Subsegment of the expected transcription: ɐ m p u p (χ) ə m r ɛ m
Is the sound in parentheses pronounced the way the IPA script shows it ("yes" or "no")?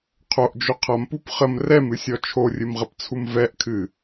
yes